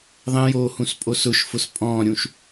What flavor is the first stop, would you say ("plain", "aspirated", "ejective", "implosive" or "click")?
ejective